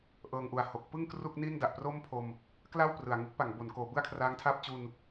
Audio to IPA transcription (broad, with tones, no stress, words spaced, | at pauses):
ʔɤː˧ŋʔu˨˩a̯ ho˨˩k̚ pɯ˥˩ŋ kru˥˩k̚niː˥˩n da˨˩ʔpro˥˩mpʰo˧m | kla˥˩w prɯ˨˩a̯ ŋɯ˦˥k̚pa˩˦ŋbo˩˦n koː˩˦bɯ˥˩a̯kʰraː˦˥ŋtʰaː˥˩p̚ t͡ɕu˧n